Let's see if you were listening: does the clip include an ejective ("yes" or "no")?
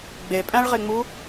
yes